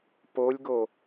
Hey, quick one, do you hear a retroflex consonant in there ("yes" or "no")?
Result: no